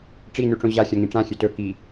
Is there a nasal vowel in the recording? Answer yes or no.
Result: yes